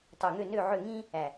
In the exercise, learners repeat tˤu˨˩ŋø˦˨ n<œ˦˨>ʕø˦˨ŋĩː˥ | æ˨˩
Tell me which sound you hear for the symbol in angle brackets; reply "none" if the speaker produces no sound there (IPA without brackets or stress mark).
ø˦˨